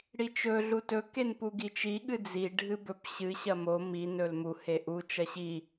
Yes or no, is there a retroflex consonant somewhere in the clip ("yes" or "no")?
yes